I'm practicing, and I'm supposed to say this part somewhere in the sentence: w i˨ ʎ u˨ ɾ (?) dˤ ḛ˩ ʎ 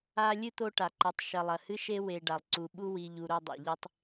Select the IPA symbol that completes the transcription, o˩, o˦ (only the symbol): o˦